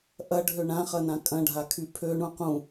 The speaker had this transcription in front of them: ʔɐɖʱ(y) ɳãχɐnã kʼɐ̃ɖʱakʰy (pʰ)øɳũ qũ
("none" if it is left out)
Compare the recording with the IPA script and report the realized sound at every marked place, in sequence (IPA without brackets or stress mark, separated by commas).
ø, pʰ